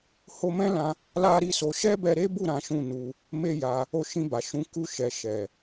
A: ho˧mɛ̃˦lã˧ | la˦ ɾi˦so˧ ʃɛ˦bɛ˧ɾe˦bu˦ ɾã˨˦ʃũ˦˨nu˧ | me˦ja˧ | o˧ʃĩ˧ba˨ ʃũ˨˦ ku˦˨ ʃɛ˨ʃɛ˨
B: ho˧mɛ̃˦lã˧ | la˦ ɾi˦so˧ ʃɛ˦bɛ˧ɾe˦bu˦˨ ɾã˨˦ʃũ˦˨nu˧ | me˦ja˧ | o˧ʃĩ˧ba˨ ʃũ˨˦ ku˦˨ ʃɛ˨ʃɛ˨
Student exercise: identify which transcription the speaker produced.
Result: B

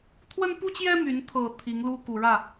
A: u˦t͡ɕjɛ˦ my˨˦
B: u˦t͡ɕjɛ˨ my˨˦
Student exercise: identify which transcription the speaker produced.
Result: A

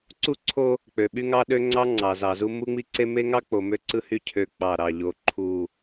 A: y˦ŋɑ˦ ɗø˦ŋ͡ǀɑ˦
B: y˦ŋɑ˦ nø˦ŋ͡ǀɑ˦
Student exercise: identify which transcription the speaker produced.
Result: A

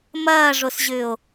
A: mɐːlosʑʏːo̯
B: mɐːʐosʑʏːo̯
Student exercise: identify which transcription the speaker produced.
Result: B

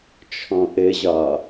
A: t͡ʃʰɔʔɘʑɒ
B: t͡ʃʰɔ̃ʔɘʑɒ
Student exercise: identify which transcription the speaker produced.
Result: B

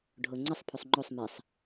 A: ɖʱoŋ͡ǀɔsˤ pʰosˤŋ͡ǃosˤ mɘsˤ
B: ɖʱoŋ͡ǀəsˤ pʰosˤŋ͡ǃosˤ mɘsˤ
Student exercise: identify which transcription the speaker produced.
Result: B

